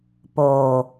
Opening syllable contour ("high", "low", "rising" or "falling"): low